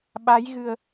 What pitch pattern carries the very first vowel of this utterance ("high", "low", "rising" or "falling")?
rising